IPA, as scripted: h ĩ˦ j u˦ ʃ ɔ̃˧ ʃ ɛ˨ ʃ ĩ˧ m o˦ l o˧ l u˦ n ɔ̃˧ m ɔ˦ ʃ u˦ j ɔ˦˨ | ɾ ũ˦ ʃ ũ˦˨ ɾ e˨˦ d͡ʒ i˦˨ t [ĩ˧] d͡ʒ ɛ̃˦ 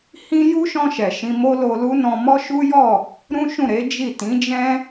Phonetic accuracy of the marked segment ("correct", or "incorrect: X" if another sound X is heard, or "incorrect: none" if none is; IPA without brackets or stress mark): incorrect: ĩ˨˦